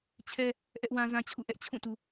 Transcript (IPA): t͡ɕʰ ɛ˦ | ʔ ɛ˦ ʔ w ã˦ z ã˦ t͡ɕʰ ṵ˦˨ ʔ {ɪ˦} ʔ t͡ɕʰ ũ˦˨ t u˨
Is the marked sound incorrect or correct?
incorrect